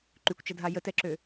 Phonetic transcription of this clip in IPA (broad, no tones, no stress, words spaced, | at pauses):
ǃykʷt͡ʃɐdʱa jətɛǁø